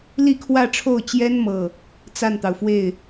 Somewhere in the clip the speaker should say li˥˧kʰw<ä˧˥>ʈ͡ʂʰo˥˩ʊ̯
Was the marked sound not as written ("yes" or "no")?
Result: yes